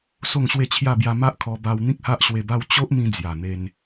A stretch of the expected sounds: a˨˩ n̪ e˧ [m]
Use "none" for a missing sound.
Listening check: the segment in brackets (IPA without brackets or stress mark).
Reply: n